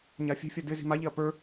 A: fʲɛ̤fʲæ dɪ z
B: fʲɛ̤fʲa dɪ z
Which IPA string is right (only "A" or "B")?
B